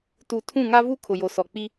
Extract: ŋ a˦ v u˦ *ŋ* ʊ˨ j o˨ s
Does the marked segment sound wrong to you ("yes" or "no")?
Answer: yes